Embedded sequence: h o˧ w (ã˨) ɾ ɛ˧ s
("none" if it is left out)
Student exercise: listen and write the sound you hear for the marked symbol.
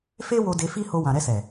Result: ã˨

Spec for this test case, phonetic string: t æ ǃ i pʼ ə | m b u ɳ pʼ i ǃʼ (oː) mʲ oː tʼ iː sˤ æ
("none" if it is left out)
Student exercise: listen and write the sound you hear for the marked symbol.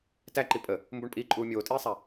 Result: uː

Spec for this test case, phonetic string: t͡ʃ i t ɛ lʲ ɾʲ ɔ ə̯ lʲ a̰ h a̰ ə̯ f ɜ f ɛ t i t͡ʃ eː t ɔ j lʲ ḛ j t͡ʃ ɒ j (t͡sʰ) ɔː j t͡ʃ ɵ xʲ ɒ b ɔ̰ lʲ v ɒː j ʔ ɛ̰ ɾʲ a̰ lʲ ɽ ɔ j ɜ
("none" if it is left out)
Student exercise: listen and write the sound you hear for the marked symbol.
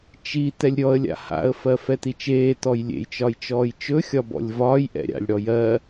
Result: t͡ʃ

